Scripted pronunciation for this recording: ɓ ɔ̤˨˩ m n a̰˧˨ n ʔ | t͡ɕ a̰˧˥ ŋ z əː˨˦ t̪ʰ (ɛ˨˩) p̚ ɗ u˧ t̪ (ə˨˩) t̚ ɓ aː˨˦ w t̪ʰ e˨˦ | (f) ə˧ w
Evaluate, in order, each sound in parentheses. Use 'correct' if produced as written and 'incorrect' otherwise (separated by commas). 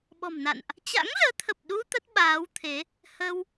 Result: incorrect, incorrect, incorrect